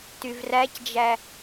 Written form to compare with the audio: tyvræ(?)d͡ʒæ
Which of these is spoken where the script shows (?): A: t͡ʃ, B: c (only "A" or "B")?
B